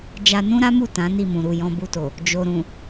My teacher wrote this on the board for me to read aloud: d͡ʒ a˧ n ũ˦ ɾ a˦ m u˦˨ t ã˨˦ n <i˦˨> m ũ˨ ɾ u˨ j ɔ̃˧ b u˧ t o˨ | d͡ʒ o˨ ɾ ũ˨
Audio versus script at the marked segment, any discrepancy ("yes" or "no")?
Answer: no